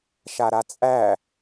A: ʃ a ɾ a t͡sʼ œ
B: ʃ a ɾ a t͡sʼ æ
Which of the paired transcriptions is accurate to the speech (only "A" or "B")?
B